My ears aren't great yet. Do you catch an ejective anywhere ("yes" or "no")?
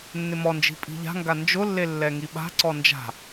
yes